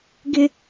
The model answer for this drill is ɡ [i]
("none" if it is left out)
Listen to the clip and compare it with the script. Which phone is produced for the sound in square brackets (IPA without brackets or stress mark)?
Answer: ɪ